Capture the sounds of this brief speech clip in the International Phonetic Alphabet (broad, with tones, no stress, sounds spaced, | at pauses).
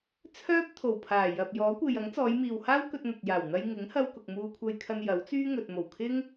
t͡sʰ œː˥ p̚ t̪ʰ o˨˩ w pʰ aː˨˩ j ɐ˨ p̚ j ɔː˨˥ kʷ e˨ j ɐ˨˥ ŋ t͡s ɔː˨˧ j m iː˨ w h aː˥ w k ɵ˧ t̚ n̪ ɐ˨ t̚ j aː˨˩ w n̪ ɐ˧ j ŋ ɪ˨˥ ŋ h ɐ˧ w k ʊ˨ k̚ m uː˧ kʷʰ ɐ˧ j kʰ ɐ˧ n j ɐ˨˥ w t͡s yː˥ ŋ ɵ˨ t̚ m o˨˩ w kʰ ɪ˥ ŋ